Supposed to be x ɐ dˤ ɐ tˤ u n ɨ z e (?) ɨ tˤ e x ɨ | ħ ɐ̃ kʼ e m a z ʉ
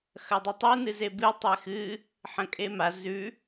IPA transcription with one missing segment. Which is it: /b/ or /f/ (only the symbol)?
b